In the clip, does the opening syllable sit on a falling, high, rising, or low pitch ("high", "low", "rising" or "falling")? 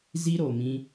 high